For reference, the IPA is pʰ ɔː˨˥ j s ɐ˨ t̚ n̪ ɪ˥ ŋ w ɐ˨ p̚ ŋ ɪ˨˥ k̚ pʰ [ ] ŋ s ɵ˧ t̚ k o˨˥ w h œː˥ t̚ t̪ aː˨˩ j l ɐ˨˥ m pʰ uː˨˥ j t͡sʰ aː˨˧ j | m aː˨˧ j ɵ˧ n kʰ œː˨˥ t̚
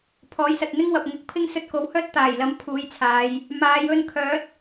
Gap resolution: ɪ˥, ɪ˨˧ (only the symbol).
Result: ɪ˥